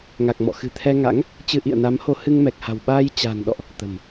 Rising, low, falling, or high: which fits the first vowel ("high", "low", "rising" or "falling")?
low